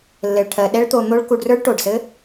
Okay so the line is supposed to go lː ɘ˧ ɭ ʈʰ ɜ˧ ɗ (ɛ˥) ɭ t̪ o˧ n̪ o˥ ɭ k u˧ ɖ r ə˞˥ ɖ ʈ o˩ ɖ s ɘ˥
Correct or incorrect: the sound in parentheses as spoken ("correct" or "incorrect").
correct